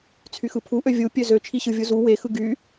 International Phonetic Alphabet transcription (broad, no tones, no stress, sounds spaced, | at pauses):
t͡sʰ y x ɯ pʰ u ʔ ø vʲ u pʲ ø z ø t͡ʃʰ i ɕ ɯ vʲ u z u w e x ɯ ɡ y